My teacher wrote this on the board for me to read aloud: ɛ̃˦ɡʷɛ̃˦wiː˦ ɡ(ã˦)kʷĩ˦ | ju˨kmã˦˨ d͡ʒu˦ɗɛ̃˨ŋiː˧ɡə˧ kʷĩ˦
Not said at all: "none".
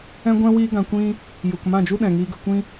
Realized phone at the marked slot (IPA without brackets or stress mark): ã˧